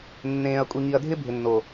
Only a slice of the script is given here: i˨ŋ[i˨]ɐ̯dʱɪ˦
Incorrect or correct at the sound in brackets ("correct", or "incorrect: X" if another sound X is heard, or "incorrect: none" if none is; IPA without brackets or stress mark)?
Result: correct